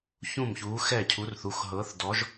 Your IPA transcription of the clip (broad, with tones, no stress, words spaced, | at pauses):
çũ˥˩mçuː˨˥xɛ˥˩cʰu˨˥r θu˩˧˩xɦɤː˨˥θdɔ˨˥ʒ